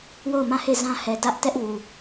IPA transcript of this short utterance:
w o˦˨ ʊ̯ m ã˦˨ h e˦˨ z ã˦ h ɛ˨ d ä˦ ʔ t ɛ˦ ʔ w u˨

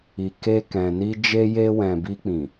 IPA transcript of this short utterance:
i˨ k e˧ k ɛ̃˨ n i˧ d͡ʒ e˧ j e˧ w ɛ̃˨ b i˧ k͡p ĩ˨

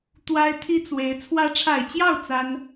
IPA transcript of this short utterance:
t̪ w a˥ ɪ̯ t̪ʰ i˥ t͡s w e˧˥ ɪ̯ t͡sʰ w ä˧˥ ʈ͡ʂʰ a˨˩ ɪ̯ t͡ɕ j ɑ˥˩ ʊ̯ t͡s a˥ n

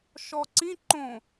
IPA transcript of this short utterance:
ʃ ɔ ǀ ĩ ǃ õ

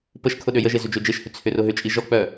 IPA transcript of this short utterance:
p ə ʃ kʰ ʊ ɗ ø j ə ʒ e z ʏ d͡ʒ ø d͡ʒ e ʃ h ʏ t͡sʰ ʏ r ʊ ɦ ʏ t͡ʃʼ i ʒ ɔ k͡p œ

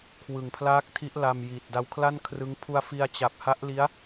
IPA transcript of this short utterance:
kʰ w ɯ˨˩ ŋ pʰ l aː˦˥ k̚ tʰ i˦˥ ʔ l a˧ m j iː˨˩ t̚ d a˧ w kʰ l a˥˩ n kʰ r ɯ˦˥ ŋ pʰ u˧ a̯ f i˧ a̯ t͡ɕ a˨˩ p̚ h a˦˥ ʔ l i˦˥ a̯

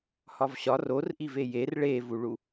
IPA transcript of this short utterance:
h ɒ v ɕ ɒ r o r ʔ i v e j e r ɭ e v u ɭ u

